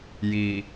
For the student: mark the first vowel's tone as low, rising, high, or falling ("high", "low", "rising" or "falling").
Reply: low